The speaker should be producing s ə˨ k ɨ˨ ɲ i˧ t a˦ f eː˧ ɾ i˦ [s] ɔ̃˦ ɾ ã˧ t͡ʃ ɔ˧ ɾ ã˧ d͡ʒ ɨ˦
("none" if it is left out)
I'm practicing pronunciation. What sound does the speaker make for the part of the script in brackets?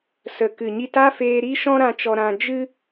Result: ʃ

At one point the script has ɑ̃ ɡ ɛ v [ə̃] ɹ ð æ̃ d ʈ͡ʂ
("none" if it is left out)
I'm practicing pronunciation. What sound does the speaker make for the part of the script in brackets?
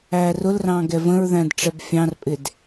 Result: ə̃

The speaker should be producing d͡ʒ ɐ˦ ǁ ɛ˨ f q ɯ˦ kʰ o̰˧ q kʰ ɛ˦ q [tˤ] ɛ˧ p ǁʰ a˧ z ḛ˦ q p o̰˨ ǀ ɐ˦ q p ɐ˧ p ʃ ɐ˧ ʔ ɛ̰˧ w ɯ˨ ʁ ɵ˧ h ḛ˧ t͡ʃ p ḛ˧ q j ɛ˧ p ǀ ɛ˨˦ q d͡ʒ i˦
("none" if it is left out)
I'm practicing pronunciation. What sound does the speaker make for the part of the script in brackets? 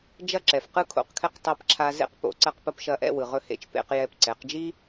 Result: tˤ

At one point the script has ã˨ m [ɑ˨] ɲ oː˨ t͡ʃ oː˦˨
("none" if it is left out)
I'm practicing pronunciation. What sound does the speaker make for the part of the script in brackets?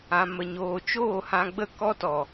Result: ə˨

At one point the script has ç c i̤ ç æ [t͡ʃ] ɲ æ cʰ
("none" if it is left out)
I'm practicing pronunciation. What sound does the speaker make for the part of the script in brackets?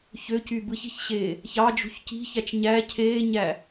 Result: t͡ʃ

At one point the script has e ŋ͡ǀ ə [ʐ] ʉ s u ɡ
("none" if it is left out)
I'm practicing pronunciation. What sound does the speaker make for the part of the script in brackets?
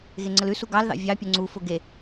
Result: l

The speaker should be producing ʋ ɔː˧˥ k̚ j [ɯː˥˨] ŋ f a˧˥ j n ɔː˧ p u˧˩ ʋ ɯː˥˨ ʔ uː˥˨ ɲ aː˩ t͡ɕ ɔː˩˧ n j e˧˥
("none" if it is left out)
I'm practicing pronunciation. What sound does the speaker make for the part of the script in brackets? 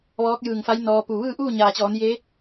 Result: ɯː˧˩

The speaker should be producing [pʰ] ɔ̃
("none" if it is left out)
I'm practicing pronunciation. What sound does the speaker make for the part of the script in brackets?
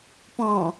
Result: p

